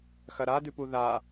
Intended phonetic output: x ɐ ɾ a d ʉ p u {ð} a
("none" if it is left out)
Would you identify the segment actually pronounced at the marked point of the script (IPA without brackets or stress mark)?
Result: ð